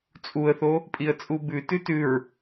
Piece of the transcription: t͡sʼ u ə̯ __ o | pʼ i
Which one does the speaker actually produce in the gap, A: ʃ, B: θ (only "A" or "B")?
B